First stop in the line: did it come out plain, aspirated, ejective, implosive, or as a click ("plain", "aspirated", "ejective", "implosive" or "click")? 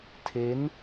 aspirated